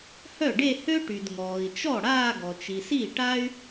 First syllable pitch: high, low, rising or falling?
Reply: falling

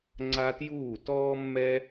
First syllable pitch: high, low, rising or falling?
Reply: high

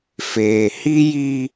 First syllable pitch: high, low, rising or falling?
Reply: low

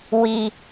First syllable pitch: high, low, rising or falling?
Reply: low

